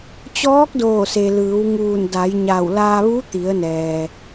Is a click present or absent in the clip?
absent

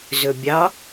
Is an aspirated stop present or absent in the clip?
absent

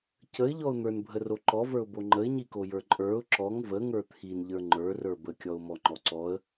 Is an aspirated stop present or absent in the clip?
present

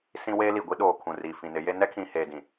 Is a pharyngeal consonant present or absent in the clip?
absent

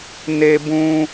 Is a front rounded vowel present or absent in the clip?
absent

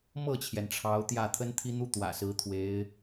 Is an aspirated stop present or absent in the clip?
present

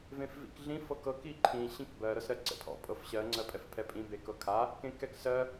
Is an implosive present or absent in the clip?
absent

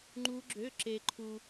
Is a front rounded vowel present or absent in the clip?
present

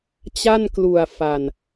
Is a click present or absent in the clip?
absent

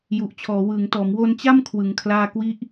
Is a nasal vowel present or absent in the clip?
absent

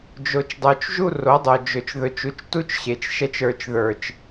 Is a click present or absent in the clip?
absent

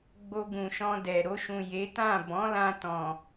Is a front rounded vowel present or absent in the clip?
absent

